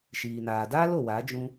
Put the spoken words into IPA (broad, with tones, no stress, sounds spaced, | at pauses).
ʃ iː˨ n aː˨ d aː˦ l o˨ w a˨˦ d͡ʒ ũ˧